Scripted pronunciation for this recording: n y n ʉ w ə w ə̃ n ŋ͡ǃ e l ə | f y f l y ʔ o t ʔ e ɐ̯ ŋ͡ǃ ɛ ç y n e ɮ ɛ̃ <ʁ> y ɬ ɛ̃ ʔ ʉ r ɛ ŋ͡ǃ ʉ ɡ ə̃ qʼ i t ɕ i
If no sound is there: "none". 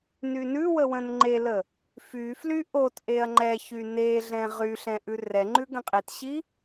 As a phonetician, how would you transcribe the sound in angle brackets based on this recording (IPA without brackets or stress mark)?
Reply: ʁ